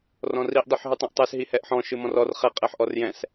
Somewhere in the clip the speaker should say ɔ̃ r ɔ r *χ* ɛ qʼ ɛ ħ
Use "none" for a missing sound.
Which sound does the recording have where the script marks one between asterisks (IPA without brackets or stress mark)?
χ